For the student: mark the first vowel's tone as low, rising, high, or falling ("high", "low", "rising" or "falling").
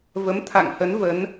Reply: rising